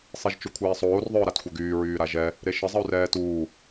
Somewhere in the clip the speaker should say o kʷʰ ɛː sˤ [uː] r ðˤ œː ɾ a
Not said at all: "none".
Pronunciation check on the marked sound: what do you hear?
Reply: oː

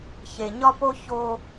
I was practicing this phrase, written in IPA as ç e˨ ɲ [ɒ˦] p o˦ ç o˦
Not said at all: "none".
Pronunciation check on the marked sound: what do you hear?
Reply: ɒ˦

